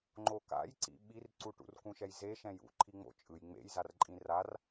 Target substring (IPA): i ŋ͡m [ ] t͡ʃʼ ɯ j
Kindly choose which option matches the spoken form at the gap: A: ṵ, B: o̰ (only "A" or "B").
B